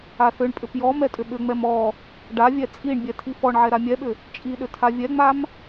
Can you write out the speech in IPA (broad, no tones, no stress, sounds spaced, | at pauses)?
a θ ʏ ɳ pʼ ʏ p j ɔ m ɛ tʼ ʏ ɓ ʏ ŋ͡m ɛ m ɔ | ɖ a vʲ ɛ t͡sʼ i ɳ bʲ ɛ tʰ i f ɔ ɳ ʕ ɛ ɾ a mʲ ɛ ɓ ʏ | t͡ʃʼ i ɗ ʏ tʰ a vʲ ɛ ŋ͡m a m